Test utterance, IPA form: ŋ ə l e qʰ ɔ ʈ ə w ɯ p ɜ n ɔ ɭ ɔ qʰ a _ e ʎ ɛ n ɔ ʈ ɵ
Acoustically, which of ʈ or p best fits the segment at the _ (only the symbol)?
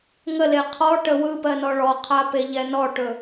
p